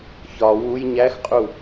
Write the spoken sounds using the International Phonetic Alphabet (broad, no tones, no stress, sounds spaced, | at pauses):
ç ɒ w u j ɲ æ x qʼ u